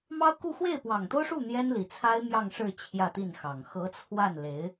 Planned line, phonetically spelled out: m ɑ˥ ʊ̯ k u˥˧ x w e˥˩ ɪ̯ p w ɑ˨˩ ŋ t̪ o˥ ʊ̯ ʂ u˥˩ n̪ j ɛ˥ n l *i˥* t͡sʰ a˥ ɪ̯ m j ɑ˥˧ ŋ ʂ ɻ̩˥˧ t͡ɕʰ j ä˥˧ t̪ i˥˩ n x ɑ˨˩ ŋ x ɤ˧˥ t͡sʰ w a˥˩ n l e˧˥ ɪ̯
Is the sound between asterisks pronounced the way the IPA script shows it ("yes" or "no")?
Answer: no